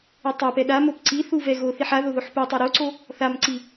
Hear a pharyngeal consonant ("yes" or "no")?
yes